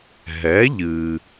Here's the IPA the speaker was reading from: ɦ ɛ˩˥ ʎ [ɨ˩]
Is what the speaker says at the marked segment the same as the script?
yes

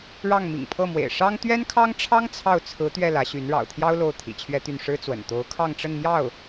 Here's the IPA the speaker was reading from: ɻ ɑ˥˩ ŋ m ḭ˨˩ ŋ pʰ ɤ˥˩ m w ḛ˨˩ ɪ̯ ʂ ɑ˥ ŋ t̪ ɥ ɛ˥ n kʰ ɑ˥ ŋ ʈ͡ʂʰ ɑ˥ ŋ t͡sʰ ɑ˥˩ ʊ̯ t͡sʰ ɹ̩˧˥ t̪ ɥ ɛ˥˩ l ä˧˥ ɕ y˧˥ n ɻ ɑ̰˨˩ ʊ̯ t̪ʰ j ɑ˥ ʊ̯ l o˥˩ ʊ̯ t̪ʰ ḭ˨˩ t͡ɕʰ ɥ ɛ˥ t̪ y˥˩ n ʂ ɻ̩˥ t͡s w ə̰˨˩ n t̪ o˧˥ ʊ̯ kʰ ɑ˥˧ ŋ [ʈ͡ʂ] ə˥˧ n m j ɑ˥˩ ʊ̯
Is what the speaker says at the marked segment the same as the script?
yes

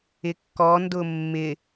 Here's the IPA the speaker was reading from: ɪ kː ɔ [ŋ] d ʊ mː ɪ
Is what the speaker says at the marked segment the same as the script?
no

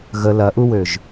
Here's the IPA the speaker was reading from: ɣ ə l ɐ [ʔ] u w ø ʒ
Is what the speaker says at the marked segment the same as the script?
yes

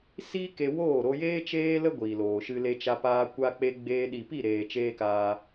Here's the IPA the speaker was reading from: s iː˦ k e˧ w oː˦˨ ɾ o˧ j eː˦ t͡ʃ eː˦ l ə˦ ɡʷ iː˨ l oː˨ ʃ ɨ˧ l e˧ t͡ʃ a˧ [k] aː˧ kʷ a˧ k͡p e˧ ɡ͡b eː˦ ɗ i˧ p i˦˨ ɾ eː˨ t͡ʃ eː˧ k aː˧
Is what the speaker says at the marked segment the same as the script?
no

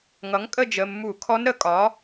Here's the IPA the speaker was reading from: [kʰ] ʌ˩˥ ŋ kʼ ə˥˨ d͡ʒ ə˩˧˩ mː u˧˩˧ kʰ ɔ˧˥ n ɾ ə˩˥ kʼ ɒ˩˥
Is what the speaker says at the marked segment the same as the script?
no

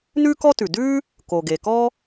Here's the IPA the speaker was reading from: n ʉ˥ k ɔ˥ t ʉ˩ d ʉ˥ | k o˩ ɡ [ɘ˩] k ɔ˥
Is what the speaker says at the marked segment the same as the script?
no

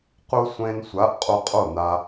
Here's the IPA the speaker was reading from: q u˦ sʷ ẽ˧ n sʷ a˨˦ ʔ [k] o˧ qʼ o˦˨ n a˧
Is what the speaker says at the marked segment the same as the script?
no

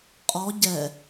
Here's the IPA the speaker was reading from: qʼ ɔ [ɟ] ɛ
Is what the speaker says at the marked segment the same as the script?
yes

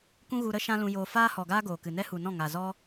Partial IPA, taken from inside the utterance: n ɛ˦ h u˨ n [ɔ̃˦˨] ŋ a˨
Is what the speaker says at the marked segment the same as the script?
yes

